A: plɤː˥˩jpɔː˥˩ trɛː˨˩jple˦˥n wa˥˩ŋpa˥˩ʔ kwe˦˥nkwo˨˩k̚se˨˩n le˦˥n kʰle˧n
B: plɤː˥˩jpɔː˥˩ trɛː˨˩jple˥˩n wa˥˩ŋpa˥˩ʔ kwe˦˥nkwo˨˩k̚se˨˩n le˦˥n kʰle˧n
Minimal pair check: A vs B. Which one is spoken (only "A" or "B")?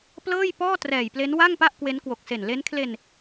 A